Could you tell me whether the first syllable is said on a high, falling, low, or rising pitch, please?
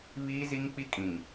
high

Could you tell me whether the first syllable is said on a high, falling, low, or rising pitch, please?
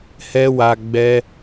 high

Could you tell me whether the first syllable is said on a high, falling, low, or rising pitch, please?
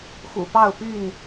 low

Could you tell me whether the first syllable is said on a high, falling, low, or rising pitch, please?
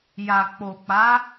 low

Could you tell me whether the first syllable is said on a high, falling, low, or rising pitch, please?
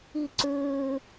falling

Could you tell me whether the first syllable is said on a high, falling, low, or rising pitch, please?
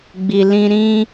low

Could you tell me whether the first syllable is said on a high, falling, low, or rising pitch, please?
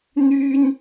high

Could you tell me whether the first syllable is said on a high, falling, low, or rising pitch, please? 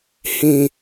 low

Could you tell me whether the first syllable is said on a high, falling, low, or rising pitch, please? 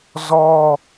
high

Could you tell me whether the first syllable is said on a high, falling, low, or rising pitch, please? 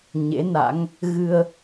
rising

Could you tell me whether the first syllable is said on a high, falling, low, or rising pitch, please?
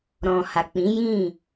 low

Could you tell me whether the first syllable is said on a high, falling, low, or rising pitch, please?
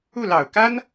falling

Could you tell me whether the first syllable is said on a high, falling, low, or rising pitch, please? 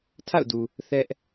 falling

